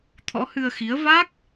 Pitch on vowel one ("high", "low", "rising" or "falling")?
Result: rising